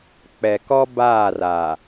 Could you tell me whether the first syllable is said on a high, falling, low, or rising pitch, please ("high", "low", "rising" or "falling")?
low